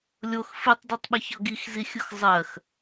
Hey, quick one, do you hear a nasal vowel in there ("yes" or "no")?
no